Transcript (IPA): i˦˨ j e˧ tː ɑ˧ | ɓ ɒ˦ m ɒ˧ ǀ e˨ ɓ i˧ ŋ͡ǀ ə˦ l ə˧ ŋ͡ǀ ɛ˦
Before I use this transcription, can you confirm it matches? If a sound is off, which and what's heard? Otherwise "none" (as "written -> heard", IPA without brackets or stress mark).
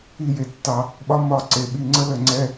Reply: none